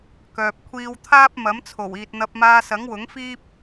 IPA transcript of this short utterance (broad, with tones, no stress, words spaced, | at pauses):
kœː˨p̚kʷʰiː˧wt̪ʰaː˥p̚ mɐ˨˥mt͡sʰo˨˩wiː˨t̚n̪ɐ˧p̚ maː˧sɐ˨˥ŋwʊ˨˥ŋfiː˥p̚